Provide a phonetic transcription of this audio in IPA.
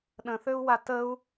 ɗ ə̃ θ ø u̯ w a t ə u̯

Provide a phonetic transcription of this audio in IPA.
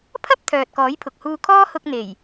pʰ ɐ˥ p̚ t̪ʰ œː˨ t̚ k ɔː˨˥ j pʰ ʊ˨ k̚ h uː˧ kʰ ɔː˥ h ʊ˧ k̚ n̪ e˨˩ j

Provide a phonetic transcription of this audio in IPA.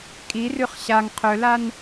kʼ i r ʉ χ ɕ a ŋ qʰ ɵ l a n

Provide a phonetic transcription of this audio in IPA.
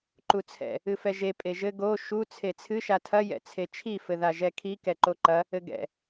ǃ u t͡sʰ ɛ̰ | ɨ f ɛ ʒ e pʼ e ʒ ɘ ɡ o ʃ u t͡sʰ e t͡sʰ ɨ ʃ a tʰ ɐ j ɛ̰ t͡sʰ e t͡ʃʰ i f ɘ ð a ʒ ɛ kʰ i k ɛ ǃ o ǃ ɐ | ɘ ɡ ɛ̰

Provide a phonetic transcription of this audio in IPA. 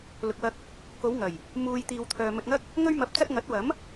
l ʊ˨ k̚ w ɐ˧ k̚ | k o˨˧ w ŋ ɐ˨˩ j | m uː˨ j t̪ iː˨ w t̪ʰ œː˨ m ɵ˧ t̚ ŋ ɐ˥ k̚ | ŋ ɵ˧ ɥ m ɐ˨˥ p̚ t͡s ɐ˧ t̚ ŋ ɐ˨˥ t̚ w ɐ˨˥ m

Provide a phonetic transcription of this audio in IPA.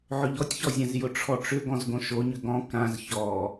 ʕ ɵ ʎ ɔ tʲ ç ɔ zʲ ã z j ʊ ʈ͡ʂʰ ɔ ʈ͡ʂ ʏ ɡ ɔ̃ z ɡ õ ʃ o ɲ ʏ ɡ ɔ̃ k ã z ç ɔ

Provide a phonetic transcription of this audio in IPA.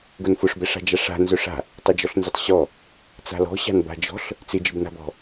ɡ ʊ n f ʊ ʂ b ɛ ʂ a̤ d͡ʒ a ʂ a̤ n z œ ʂ a̤ | tˤ ɪ d͡ʒ ɔ ɬ n z ɪ tˤ ɕ ɔ | t͡s a̤ l ɔ̤ ɕ a̤ n b a̤ d͡ʒ ɔ̤ ɬ | t͡s ɪ d͡ʒ ɪ b n a̤ b ɔ̤

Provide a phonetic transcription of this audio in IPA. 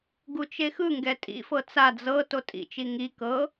ɡ u t͡ʃ e x ɯ ŋ ɡ ɛ tʼ ḭ f ɤ t͡s a d͡z ɤ t o tʼ ḭ t͡ʃ i ŋ i k ɤ

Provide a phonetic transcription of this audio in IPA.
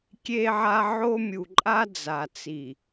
kʲ e˦ ʕ a˦ ʕ o˦ mʲ u˨ ǃʼ a˦ d͡z a˨ t͡s i˨

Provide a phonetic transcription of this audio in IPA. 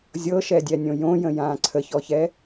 zʲ ɤ ʃ ɛ dʲ ɛ nʲ õ j õ j ə̃ j ãː ǀʰ ə ç ɔ ç ɛ

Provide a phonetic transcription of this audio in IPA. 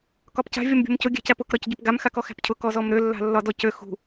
k ɒ p c a̤ vʲ ɒ m bʲ o̤ m c ʊ ɡʲ æ̤ c æ p ʊ k ɾ ɒ c ɟ ø p ɡ a m x a k ɔ x æ̤ p cʰ ʊ k ɔ z ɔ m ɾ ø lː a̤ lː ɒ d ɔ c ø x ṳ

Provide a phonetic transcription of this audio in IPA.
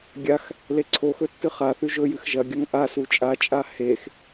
ɡʲ a x | l e ǀʰ o x ɵ tː ɨ χ a θ ʉ ʒ ɵ j ɨ x ʒ ɐ ɡʲ ɐ ŋ ʔ a s u t͡ʃʼ a t͡ʃʼ a h e x

